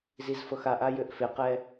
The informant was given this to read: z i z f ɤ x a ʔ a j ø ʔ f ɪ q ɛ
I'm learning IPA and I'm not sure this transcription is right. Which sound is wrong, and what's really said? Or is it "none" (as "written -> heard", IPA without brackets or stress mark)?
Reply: none